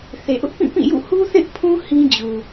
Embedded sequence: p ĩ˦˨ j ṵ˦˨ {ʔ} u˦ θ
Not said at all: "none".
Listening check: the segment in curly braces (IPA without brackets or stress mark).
h